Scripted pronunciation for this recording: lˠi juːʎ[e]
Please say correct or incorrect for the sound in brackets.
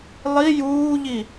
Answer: incorrect: i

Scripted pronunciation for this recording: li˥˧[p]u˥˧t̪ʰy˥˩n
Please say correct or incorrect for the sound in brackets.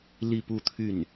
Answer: correct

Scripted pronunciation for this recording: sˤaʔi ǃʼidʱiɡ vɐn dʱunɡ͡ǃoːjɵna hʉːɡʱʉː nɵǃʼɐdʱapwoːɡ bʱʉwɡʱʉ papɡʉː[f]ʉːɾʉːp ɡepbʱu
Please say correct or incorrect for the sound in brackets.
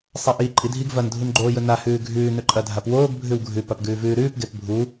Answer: incorrect: v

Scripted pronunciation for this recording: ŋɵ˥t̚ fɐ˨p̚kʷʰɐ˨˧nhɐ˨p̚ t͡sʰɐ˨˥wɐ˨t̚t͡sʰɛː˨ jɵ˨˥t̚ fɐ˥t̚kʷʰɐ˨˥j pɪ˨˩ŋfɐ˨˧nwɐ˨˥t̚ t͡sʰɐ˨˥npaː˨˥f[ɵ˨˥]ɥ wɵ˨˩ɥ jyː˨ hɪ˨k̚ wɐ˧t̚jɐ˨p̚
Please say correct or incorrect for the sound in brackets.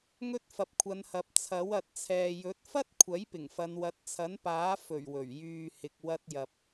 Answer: incorrect: ɵ˨˩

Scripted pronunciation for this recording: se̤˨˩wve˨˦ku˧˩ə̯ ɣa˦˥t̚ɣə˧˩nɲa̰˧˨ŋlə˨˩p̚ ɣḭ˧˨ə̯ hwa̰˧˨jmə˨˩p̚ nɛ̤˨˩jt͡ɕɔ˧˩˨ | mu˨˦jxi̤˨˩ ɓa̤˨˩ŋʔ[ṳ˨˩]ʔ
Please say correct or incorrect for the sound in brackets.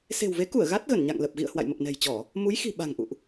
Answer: incorrect: ṵ˧˨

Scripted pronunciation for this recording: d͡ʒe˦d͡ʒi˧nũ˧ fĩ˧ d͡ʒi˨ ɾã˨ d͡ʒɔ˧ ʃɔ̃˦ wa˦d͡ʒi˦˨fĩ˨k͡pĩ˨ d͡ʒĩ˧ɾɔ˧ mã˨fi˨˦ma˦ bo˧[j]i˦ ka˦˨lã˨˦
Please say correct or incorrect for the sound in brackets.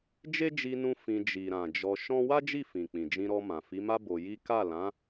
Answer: correct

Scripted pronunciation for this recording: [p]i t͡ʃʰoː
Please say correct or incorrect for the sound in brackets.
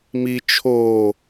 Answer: incorrect: m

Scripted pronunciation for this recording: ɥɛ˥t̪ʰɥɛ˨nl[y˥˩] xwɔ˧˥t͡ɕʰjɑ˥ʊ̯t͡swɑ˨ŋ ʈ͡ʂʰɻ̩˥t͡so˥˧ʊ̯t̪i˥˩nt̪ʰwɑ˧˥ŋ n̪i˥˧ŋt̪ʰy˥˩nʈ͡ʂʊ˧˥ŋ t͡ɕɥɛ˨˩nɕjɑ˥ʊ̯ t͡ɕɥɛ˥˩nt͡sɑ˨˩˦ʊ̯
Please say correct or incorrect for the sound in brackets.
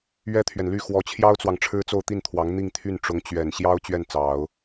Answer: correct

